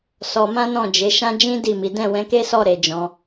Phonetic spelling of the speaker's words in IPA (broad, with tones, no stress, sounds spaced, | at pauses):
s ɔ˧ m ã˦ n ɔ̃˦˨ d͡ʒ e˨˦ ʃ ã˦ d͡ʒ ĩ˦ d i˦˨ m i˨˦ d ɛ̃˦˨ w ɛ̃˧ k e˦ s ɔ˦˨ ɾ e˨˦ d͡ʒ ɔ̃˧